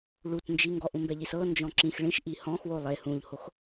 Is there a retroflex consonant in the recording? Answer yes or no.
yes